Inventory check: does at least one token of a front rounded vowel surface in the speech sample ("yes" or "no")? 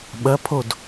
no